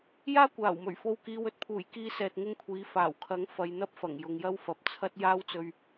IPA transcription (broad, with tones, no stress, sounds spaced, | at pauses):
j aː˥ kʷ aː˨˩ w m ɵ˨˩ ɥ f o˨ w k iː˨ w ɵ˧ t̚ pʰ uː˨˩ j k iː˥ s ɛː˧ t̚ ŋ ɪ˥ ŋ kʷʰ iː˨˥ f aː˨˩ w kʰ ɐ˨˥ ŋ f ɐ˨˧ j n̪ ɐ˥ p̚ f ɐ˨˩ ŋ j ʊ˨ ŋ j ɐ˥ w f ɐ˨˥ p̚ t͡sʰ ɐ˥ t̚ j aː˥ w t͡s ɵ˧ ɥ